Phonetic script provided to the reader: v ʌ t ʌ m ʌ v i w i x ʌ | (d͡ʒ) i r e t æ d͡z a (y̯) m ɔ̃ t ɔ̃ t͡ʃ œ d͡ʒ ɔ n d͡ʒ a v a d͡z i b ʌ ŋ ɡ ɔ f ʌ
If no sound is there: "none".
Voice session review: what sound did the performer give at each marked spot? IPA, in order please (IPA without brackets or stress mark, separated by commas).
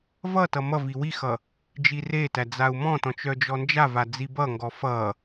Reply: d͡ʒ, u̯